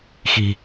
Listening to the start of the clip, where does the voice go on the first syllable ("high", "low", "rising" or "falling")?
low